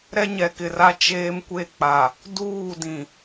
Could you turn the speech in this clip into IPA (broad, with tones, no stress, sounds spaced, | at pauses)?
ɾ ɛ˦ ɲ ɛ˨ k ɪ˨ r a˦ t͡ʃ eː˦ m kʷ e˦˨ k͡p a˨ | d uː˦˨ d ĩ˨